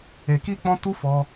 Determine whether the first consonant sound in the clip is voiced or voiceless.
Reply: voiceless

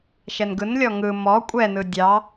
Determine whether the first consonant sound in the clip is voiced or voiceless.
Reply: voiceless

